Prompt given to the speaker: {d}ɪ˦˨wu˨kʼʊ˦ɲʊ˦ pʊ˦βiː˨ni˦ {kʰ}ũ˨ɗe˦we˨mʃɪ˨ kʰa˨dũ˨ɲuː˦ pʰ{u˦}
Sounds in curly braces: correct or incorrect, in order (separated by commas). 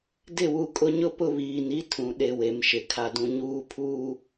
correct, incorrect, incorrect